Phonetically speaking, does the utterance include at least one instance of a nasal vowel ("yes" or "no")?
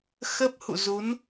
no